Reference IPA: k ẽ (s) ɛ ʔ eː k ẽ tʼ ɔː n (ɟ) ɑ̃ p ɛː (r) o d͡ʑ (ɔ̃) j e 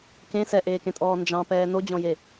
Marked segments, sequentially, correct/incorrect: correct, incorrect: d͡ʒ, incorrect: n, correct

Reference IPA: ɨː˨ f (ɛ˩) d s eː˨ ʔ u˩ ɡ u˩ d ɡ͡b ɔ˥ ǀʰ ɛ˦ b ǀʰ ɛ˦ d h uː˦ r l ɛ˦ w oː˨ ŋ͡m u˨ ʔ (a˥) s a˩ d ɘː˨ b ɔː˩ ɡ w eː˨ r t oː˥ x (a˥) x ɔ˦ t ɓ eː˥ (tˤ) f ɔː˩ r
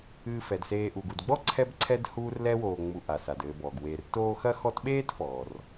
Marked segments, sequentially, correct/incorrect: correct, incorrect: a˩, incorrect: ɐ˥, incorrect: t

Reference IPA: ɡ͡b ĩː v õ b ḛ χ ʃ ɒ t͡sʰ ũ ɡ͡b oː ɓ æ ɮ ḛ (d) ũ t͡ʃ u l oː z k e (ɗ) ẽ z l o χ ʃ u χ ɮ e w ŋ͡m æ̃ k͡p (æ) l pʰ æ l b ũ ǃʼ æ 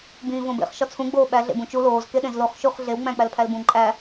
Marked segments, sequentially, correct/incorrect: incorrect: b, correct, correct

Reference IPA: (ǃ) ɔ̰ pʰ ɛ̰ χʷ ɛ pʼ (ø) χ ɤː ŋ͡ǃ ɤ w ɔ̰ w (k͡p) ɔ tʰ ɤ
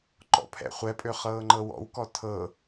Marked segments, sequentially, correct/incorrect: correct, correct, incorrect: k

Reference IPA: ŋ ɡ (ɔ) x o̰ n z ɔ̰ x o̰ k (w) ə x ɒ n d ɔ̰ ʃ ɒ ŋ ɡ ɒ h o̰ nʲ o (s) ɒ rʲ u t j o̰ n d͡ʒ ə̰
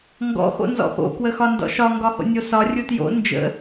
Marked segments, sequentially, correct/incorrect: incorrect: ɔ̰, correct, correct

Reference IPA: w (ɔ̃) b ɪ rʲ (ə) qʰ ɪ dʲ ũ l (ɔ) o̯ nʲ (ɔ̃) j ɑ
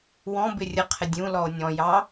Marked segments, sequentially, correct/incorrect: correct, correct, correct, correct

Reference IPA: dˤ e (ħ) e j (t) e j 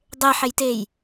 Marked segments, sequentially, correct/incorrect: correct, correct

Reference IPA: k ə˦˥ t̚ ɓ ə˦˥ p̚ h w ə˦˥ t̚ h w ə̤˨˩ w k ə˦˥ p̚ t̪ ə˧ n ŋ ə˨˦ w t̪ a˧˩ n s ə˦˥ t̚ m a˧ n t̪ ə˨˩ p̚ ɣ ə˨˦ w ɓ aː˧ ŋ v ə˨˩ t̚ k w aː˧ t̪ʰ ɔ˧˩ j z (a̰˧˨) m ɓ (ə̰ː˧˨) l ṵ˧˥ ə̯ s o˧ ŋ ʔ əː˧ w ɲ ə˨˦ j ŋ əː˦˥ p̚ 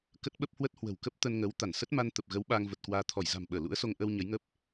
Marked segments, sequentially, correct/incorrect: incorrect: a̤˨˩, incorrect: əː˧˩

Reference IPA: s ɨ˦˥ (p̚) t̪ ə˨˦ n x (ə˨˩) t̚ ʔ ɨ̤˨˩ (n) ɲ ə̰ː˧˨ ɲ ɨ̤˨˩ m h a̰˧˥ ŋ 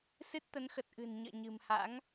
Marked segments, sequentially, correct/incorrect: incorrect: t̚, correct, correct

